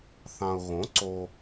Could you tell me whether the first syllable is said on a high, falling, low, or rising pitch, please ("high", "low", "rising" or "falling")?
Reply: low